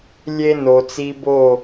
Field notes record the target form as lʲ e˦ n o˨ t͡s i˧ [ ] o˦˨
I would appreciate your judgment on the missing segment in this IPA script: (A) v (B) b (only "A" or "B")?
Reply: B